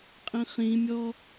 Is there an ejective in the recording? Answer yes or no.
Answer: yes